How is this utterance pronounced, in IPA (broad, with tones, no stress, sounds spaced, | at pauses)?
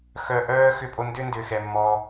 x œ˧ ʔ œː˦ x ʏ˧ pʼ o˧ n d ʏ˦ n d ʏː˨ x ɛ˨ mː ɔː˧